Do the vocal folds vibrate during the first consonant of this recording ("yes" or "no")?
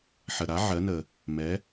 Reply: no